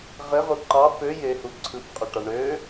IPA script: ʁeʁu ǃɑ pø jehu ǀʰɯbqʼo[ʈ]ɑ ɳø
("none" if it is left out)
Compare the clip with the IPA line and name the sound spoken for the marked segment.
ʈ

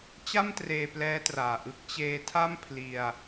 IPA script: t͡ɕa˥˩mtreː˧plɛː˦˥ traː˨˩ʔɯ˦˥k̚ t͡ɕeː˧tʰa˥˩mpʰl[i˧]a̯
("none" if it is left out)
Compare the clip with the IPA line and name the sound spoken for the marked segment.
i˧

